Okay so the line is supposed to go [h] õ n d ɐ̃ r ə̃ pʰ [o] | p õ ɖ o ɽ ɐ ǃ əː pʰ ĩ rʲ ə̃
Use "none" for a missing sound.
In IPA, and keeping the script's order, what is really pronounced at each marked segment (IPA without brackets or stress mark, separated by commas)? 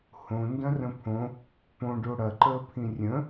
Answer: h, õ